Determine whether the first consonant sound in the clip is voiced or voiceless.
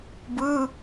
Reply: voiced